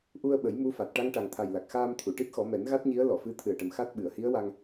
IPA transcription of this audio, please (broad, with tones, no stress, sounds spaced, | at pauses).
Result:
ʔ u˧ ə̯ ɓ ə˨˩˦ j m u˧˥ f a˨˩ t̚ ʈ a˧ ŋ ʈ a˨˩ ŋ t̪ʰ a˨˩ j l a˨˩ k̚ x aː˧ m t̪ʰ u˨˩˨ ʈ i˦˥ t̚ x ɔ˨˩˦ m ɛ˨˩˦ n ɣ a˦˥ t̚ ɲ i˧˥ ə̯ l ɔ˨˩˨ f ɨ˧˥ t̪ʰ ɨ˨˩ ə̯ ʈ ə˨˩ m x a˦˥ t̚ ɓ ɨ˨˩˨ ə̯ h i˧˥ ə̯ w a˧ ŋ